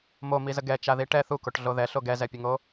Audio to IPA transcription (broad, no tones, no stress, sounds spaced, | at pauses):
m o m i z ə ɡ ɛ t͡ʃ a ð i ʈ ɛ θ u k o ʈ ɮ o ð ɛ ɬ o ɡ ɛ z ɛ pʲ ə ŋ o